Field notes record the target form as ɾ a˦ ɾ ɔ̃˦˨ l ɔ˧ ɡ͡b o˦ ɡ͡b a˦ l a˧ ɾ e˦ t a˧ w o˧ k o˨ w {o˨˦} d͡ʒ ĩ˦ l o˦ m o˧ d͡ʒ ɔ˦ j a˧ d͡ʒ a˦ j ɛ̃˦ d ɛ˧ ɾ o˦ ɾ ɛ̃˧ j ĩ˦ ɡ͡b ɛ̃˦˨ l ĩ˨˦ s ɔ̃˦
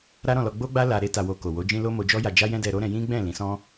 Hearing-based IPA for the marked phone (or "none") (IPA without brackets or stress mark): o˨˦